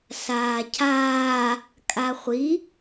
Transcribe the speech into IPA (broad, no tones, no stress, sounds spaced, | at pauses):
s aː cʰ aː | kʼ a χʷ i